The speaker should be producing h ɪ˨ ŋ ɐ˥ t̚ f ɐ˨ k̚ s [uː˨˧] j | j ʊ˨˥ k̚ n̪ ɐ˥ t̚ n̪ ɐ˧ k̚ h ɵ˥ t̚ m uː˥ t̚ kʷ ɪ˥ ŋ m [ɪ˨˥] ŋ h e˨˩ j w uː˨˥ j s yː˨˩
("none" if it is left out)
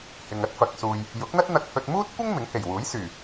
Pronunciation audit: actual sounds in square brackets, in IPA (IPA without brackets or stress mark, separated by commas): uː˨, ɪ˨˥